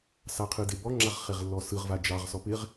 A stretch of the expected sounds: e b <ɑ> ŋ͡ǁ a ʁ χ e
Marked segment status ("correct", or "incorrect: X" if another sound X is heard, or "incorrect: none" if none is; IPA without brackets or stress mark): incorrect: ɔ